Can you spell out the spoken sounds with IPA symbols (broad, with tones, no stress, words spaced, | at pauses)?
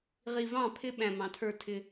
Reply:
ʁi˨vɑ̃˦˨pʰɪ˦ɓæ̃˨ mɑ̃˨tʰə˞˦˨tʰɪ˦